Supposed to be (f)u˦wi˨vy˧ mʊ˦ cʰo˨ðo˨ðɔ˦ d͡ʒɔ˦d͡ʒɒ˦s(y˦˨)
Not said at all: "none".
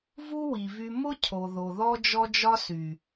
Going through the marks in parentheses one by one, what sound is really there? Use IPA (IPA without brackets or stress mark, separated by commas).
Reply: v, y˨